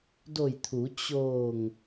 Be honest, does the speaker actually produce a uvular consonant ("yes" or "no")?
no